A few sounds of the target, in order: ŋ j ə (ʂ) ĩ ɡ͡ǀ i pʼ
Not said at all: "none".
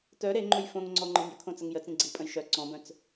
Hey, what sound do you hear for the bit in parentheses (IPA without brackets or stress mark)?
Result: t͡s